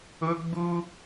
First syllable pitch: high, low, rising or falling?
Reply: high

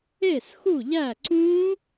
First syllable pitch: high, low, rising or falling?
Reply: falling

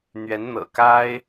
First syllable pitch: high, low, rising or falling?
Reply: rising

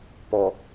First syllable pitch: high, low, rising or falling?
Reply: low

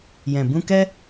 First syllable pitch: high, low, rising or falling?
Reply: low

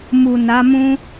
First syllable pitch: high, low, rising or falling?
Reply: low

